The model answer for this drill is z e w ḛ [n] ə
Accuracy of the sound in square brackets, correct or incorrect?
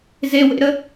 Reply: incorrect